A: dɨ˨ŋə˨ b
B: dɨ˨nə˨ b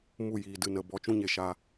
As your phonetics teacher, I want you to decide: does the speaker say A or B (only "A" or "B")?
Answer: B